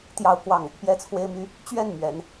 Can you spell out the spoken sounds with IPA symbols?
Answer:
t̪ j ɑ˥˧ ʊ̯ k w ɑ˥˩ ŋ | p j ɛ˥ t͡sʰ w e˥ ɪ̯ m y˥ | t͡ɕ ɥ ɛ˥˩ n m ɥ ɛ˧˥ n

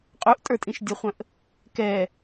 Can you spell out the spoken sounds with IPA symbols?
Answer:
qʼ u ʔ tʼ ə˞ tʼ ĩ ʃ dʲ ə χʷ ə̃ ʔ | k ɛ

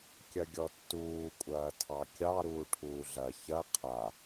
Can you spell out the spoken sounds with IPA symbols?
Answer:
kʲ ɐ ɡʲ ɔ tː uː kʷʼ ɐː tʰ ɑ kʲ ɑ ɾ uː ʈʰ uː ɮ ɐ ç ɐ qʰ a

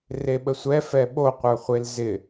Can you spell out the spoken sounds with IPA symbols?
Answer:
r e ɓ ə sʷ ɛ f ɛ ɓ o qʷ ə˞ χʷ e l z ɪ

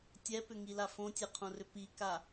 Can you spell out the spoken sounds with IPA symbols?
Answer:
tʲ ɛ p ʏ ŋ i l a f õ tʲ ɛ qʰ õ r ʏ p i k a

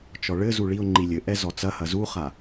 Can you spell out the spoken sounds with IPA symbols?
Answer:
t͡ʃ ɔ ɭ ɘ z u ɭ i ʊ̯ ŋ͡ǃ i lʲ ɘ ʔ ɛ z ɔ t͡s ɐ h ɐ z u χ a

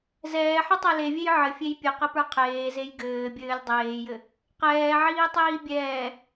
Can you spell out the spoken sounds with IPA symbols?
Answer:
z ɛː ħ ɘ tˤ ɛ l e vʲ e j ʕ ɘ fʲ e j pʲ ɘ q ɘ p ə˞ qʰ eː z e j ɡ ɘː bʲ ɘː lʲ dˤ eː j ɘ | q ɛː ʕ iː tˤ iː bʲ ɛː

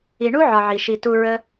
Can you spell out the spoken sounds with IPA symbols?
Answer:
i˨ ɳ u˥ ʕ ɒ˨ ʕ i˩ ʃ i˨ t u˦ ɹ ə˥

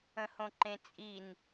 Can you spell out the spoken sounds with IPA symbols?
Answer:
ə̃ h õ ǃ ẽ t͡sʼ i n

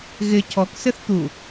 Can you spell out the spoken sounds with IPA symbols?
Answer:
ɣ ɪ cʰ ɔ k s ɪ θ t̪ u

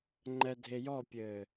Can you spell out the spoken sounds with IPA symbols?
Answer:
ŋ͡ǃ ɛ dʱ e j ɔ pʲ ɘː

